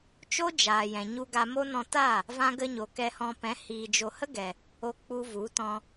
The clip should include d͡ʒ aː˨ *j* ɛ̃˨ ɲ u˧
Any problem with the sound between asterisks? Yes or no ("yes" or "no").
no